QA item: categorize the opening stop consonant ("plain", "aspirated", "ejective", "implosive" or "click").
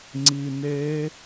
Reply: click